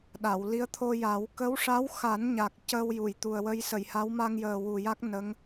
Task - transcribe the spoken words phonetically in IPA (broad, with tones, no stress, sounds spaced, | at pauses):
ɗ a˨˩˨ w l i˧˥ ə̯ t̪ʰ o˧ j a˨˩˦ w k ə˧˥ w ʂ a˧˥ w x a˨˩˦ n ɲ a˨˩ k̚ c əː˧ w j u˨˩˨ j t̪ u˨˩ ə̯ w ə˧ j s ə˨˩˨ j h a˧˥ w m a˧ ŋ j əː˨˩ w u˨˩ j a˦˥ k̚ n ə˧˥ ŋ